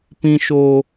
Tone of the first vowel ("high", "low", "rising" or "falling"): high